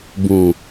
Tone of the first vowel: low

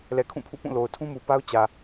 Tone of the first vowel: low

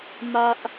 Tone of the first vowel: high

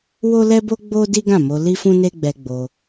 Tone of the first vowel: high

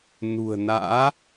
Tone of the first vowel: low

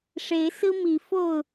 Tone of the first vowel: rising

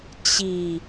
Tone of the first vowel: low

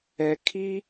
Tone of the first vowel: low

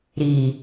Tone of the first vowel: low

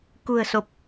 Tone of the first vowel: low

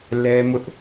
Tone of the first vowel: high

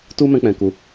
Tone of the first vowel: high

